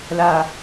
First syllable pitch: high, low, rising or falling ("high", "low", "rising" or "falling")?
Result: low